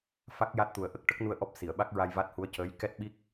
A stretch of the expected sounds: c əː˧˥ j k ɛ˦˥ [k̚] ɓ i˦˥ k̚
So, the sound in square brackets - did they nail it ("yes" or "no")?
no